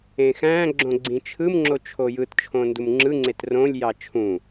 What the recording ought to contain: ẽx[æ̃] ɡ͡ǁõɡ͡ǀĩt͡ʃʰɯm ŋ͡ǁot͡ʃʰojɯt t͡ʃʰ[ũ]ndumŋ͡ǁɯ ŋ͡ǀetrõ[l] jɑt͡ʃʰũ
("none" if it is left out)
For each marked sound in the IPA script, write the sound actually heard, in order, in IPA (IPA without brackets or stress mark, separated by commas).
æ̃, õ, lʲ